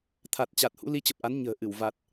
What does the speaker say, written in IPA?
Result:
t̪ʰ a˨˩ t̚ t͡ɕ a˨˩ t̚ h ṵ˧˥ l i˨˦ t͡ɕ ə˨˩ p̚ ʔ a˨˦ n ɲ ə̤ː˨˩ ʔ ɨ˧˩ w v a˨˩ t̚

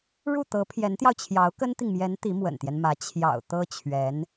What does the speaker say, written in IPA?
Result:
ɻ u˥˩ t̪ ɤ˧˥ pʰ j ɛ˧˥ n t̪ j ɑ˧ ʊ̯ t͡ɕʰ j ɑ˧˥ ʊ̯ k ə˥ n t̪ i˨ ŋ m j ɛ˧˥ n t̪ i˧˥ m w ə̰˨˩ n t̪ j ɛ˦ n m ä˧˥ t͡ɕʰ j ɑ̰˨˩ ʊ̯ t̪ ɤ˥ t͡ɕʰ ɥ ɛ˧˥ n

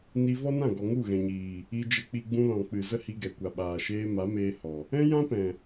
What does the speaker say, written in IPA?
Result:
n i˧ v ɔ˦ n ã˦˨ ɡ ɔ˨ ŋ u˦˨ ɣ ɛ̃˨ ɲ iː˨ | i˧ d͡ʒ ə˧ k͡p i˧ ɡ͡b ũ˧ l ɔ̃˨ k͡p ɨ˨ z ə˦ h i˧ ɡ ɛ˨ kʷ a˨ ɓ aː˨ ʃ eː˧ m a˨˦ m eː˧ h ɔ˨ | ɛ̃˦ j ã˦ p ɛ̃˨

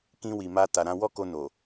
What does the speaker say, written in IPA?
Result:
k ĩ˧ w i˨ m a˧ t a˨ ɾ ã˧ w ɔ˦ k o˧ n o˨

